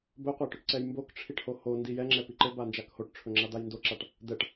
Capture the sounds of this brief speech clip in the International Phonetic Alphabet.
b ɵ qʷ a ʈ ɵ ʈ ǀ ɛ j m b o k ʈ͡ʂʰ i ʈ h o h o n d i j ɛ ŋ͡ǁ ɛ p i ǃ ɘ b a n d͡ʒ a k h o ʈ ʈ͡ʂʰ ɵ ŋ͡ǁ a d̪ a j n d o ǁ a ʈ | d̪ ɛ ʈ

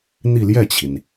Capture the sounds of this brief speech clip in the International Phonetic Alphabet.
n̪ i˥˧ l j ɛ˥˩ t͡ɕʰ i˩ n

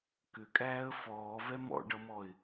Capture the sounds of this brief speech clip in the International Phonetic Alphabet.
k ʏ kʼ æː ə̯ f ɔː v ɛ m ɔ̰ ɖ ʌ m ɔ ɪ̯

